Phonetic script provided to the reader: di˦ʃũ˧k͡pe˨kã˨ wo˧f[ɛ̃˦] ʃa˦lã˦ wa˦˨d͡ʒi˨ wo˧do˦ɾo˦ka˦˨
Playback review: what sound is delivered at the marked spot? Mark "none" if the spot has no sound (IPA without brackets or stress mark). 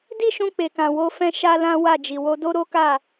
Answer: ɛ̃˦